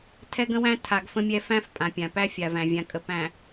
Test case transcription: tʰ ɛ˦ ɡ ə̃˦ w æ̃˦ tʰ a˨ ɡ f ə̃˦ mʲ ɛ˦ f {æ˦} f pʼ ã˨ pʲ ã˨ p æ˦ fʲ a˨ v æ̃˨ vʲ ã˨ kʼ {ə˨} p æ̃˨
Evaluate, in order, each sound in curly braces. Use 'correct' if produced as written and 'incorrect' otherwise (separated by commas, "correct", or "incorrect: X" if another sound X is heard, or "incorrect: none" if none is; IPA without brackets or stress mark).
incorrect: æ̃˦, correct